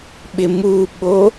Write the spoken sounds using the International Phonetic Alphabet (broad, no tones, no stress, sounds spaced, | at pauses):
ɓ ɪ m u ɓ o